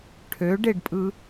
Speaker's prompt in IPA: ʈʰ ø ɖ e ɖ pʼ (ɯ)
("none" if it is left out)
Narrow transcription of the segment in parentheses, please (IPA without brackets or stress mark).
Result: ɯ